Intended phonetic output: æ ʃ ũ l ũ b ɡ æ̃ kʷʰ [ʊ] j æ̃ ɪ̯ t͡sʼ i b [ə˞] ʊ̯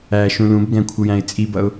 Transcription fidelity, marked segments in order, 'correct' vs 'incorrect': incorrect, incorrect

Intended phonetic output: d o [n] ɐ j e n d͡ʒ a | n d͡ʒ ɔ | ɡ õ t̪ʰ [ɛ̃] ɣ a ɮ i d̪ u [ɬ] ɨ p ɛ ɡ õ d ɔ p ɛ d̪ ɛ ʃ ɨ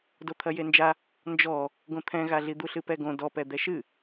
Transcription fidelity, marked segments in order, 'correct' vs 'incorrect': incorrect, correct, correct

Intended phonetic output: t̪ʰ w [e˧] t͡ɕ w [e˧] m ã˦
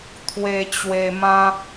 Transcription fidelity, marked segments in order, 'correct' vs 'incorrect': correct, correct

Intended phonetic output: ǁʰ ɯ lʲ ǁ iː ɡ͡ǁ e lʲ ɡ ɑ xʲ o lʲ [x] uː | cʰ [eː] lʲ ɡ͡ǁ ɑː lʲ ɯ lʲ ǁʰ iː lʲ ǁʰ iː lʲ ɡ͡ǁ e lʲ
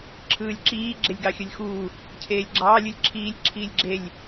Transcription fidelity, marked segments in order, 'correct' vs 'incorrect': correct, correct

